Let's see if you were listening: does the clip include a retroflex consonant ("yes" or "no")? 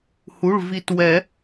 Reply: yes